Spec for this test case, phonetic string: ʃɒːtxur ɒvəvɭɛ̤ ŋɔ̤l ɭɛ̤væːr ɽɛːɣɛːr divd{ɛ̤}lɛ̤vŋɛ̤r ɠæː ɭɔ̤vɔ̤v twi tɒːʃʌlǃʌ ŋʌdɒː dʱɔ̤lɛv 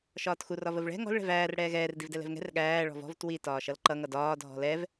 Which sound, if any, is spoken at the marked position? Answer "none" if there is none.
ɛ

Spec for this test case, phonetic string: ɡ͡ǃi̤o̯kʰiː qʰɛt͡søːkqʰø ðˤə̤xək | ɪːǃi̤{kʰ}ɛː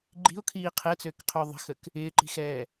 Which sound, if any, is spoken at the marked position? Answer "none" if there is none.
x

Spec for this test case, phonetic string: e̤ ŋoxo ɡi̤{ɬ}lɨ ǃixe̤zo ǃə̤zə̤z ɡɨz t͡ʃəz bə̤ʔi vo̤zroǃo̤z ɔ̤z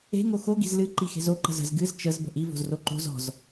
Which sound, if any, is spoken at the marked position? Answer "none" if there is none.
z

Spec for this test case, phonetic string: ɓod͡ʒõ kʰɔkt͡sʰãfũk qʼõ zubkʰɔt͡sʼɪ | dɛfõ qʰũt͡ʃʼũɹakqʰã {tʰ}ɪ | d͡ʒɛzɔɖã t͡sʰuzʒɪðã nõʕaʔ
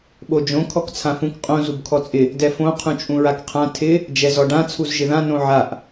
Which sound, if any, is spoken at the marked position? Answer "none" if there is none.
tʰ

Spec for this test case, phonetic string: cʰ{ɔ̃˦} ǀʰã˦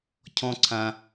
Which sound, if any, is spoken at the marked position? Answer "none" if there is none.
ɔ̃˦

